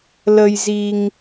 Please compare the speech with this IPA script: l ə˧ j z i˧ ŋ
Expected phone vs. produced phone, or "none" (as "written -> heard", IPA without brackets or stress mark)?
none